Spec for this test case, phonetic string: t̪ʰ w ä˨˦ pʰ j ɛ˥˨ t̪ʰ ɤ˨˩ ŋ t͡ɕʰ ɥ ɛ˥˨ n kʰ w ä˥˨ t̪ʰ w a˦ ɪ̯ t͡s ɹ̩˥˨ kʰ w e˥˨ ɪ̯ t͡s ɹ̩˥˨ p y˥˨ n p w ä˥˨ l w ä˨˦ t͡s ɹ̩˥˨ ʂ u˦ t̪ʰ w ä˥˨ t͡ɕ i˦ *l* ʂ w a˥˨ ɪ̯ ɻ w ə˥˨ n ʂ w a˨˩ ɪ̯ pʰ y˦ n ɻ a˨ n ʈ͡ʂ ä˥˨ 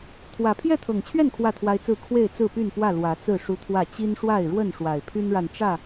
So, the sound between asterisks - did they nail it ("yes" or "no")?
no